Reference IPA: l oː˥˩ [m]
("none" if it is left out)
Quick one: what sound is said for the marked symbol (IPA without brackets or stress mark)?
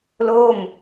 m